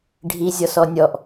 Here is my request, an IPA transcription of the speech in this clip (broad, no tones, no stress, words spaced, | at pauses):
ɖʱi zʲɔsɔnʲɔʔ